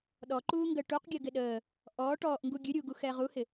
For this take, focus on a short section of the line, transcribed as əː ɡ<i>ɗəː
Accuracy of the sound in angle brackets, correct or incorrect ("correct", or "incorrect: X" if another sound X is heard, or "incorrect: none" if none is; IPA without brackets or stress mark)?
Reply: incorrect: ɪ